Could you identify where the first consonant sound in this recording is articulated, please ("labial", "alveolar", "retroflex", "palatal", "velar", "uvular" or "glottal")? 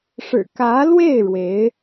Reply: retroflex